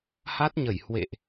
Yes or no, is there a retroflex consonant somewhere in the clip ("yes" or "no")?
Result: no